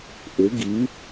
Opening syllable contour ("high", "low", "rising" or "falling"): rising